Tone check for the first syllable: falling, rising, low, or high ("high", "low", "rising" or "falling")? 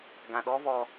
low